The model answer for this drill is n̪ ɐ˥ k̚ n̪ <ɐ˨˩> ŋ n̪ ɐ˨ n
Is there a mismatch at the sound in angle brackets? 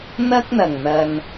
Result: no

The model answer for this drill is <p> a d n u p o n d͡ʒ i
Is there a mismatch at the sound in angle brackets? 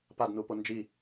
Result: no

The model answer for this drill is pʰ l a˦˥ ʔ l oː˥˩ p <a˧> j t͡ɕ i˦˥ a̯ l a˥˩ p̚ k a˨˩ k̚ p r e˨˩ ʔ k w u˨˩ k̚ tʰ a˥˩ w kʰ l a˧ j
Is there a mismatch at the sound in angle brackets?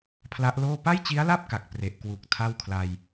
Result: yes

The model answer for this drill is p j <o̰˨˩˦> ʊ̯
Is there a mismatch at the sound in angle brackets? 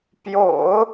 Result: no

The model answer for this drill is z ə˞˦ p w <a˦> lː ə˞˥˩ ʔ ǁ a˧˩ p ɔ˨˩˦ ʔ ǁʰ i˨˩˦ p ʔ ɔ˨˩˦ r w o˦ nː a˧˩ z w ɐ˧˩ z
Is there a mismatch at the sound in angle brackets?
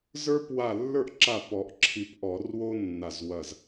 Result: yes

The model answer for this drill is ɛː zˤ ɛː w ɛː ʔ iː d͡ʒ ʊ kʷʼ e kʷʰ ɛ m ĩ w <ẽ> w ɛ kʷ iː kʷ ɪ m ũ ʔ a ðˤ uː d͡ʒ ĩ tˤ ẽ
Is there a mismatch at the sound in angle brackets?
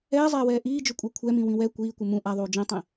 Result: yes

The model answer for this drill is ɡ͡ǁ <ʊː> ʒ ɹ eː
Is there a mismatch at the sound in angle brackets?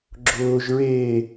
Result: no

